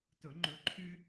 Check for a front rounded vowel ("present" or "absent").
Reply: present